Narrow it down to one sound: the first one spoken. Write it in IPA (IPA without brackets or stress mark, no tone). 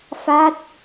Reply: f